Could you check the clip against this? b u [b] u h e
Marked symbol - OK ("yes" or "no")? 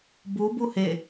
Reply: yes